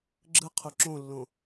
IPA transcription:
ɡ͡ǁ ɯ qʰ u ǁ õ lː õ

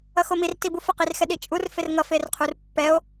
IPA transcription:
ʌ x o m i r t i b u f ʌ q i r x ɛ ɗ i t͡ʃʼ u r f e r ŋ ʌ f e r qʰ u r pː ɛ o̯

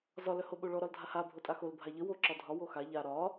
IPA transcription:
z ɒ l œ h o ɓ o ɭ ɔ ɾ ɒ l dʱ a h a bʱ o tʼ a x o l bʱ a ʎ ə w o ǁ ɒ dʱ ɒ w o x a ʎ a ɾ ɒ

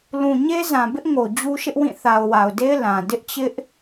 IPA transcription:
l ũ˨ ɲ e˦ z ã˨ b ɪ˦ ʔ ŋ o˨ d͡ʑ u˦ ʃ ɪ˦ ʔ w ĩ˦˨ θ a˨ ʊ̯ w a˨ ʊ̯ d e˦ ɪ̯ l ã˨ d ɪ˦ ʔ t͡ɕ ɪ˦ ʔ

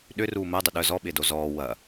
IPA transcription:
ɗ ʏ r uː m əː dˤ ʏ ɗ œ z ɔ ɓ ɪː d o z ɔː w ɐ

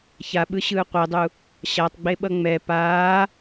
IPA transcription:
ç a ɓ ɯ ɕ ɯː qʷ e dˤ u | ɕ a tˤ ɡ͡b e ɓ ʌ ŋ͡m ɛ p aː

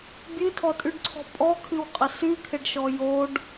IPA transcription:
bʲ ɨ tʰ ɔ tʼ y ɖ ǀʰ ɔ̤ pʼ ɔ kʰ ɨ w qʼ ə s y kʰ ɪ ɖ ʃ ɔ j o ɖ

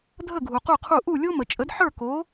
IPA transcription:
dʱ ə˥˩ ɡʱ u˩ q u˥˩ qʰ u˥˩ ʔ u˥˩ lʲ o˥ m ə˩ t͡ʃʼ ə˩˥ d ħ ə˞˥˩ k o˩˥

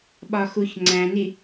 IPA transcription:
ɓ ɒ x u ç ŋ͡ǀ æ̃ n i

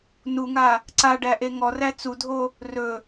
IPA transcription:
n u ŋ a | ǀ a ɖ æ ʔ e ŋ ɔ r æ t͡s u dʱ o | r ɵ

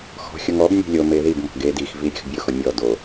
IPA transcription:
x ɔ̤ xʲ ʊ ŋ ɔ b nʲ e̤ lʲ o m e ð i b m ɔ̤ ɡ e d i x v i ɾʲ e̤ x bʲ ʊ x ʊ mʲ ɔ d o

